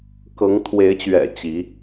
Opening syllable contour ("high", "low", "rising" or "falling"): rising